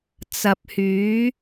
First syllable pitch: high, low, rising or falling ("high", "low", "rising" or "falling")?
low